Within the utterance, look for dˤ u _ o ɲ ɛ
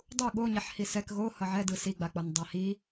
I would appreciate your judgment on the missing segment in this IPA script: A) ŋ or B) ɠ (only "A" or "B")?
B